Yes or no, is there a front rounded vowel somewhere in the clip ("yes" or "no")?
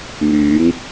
yes